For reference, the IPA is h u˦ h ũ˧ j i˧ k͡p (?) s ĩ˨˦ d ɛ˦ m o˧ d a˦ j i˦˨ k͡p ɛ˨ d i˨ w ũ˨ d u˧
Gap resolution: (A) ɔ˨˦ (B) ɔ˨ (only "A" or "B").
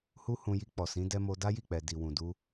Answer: B